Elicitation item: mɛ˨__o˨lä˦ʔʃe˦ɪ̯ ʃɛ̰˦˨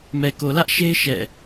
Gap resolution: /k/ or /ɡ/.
k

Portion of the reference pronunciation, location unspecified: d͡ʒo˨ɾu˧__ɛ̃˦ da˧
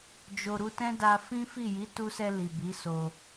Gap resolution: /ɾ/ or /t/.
t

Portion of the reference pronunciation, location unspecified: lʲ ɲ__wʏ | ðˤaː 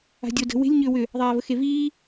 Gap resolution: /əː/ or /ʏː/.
ʏː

